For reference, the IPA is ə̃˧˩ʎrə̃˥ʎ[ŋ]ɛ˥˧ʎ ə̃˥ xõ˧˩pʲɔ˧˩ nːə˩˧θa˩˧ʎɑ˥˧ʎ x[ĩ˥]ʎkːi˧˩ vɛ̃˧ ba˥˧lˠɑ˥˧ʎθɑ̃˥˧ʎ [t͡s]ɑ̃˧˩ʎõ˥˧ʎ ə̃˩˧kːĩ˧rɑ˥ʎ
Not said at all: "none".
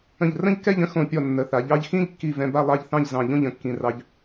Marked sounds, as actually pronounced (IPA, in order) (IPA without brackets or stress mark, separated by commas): k, ĩ˥, z